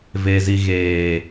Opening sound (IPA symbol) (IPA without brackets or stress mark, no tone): v